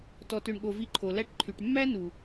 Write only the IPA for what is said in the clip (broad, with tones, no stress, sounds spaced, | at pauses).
t ɔ˨ t ø˨ ɳ ɠ o˨ v i˧ ǃʰ o˨ l æ˦ ʈ ǃʰ y˨ ʈ mː æ˦ n u˨